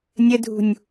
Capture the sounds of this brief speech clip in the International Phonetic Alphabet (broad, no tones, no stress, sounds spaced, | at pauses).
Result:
nʲ ə dʱ ṳ nʲ